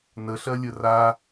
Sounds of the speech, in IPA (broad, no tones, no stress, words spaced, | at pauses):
nəɬɜ lʲəra